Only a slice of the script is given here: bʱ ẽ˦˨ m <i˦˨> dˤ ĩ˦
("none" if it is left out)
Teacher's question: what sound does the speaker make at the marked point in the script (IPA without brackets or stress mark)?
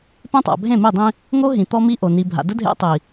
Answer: i˦˨